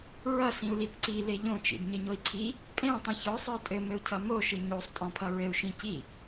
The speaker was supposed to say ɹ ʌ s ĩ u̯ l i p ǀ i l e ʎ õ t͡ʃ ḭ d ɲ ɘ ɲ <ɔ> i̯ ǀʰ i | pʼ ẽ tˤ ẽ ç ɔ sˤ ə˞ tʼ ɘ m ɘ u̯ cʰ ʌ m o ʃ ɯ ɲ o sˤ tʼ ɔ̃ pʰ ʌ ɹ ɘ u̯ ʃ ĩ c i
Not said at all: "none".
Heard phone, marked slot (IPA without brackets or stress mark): o